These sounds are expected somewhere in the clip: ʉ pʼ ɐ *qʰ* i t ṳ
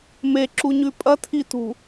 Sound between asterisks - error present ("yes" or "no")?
yes